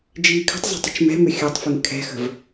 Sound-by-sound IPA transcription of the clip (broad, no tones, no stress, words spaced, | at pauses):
d͡ʒiːkʰə̤tˤzˤɛ̤tˤ ə̤t͡ʃmɛ̤mʏ xʲɑtˤfɯŋ kʰɛ̤xə̤v